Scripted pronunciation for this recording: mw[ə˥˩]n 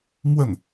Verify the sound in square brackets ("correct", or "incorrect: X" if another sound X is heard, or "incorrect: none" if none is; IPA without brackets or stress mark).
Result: correct